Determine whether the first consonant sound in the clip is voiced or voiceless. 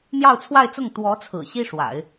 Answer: voiced